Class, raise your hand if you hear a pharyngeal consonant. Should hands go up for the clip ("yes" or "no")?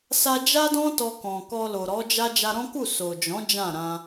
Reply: no